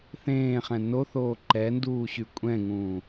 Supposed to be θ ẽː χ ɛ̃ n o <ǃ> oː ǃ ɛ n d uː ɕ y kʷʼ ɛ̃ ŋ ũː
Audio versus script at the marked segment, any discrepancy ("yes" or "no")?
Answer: yes